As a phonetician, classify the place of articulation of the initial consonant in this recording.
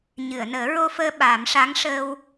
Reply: palatal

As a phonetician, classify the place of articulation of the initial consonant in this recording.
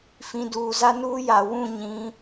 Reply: labial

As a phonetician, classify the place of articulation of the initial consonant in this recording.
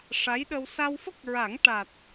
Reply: retroflex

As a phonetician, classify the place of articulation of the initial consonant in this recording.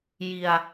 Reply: palatal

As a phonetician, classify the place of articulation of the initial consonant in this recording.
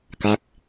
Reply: velar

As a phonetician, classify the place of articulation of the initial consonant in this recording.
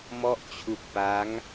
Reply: labial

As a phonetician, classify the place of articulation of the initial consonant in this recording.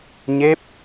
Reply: palatal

